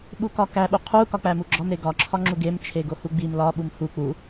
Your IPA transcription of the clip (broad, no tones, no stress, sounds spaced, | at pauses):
ɓ u k ɒ k æ ɓ u qʰ u k ɒ k͡p æ m u ɡ͡ǁ ɒ m ɾ e ɡ ɒ ǁʰ ɒ ŋ͡ǁ u ɡ e m t͡ʃʰ e ɡ o h u ɡ͡b i m l ɒ ɓ u m h u k͡p u